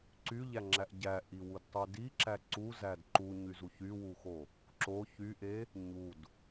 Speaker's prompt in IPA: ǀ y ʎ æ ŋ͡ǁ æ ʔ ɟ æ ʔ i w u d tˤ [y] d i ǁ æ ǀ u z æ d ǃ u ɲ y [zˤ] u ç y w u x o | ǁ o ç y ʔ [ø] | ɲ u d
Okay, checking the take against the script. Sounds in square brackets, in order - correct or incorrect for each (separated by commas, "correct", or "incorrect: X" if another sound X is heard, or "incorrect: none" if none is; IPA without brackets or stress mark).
correct, incorrect: z, incorrect: e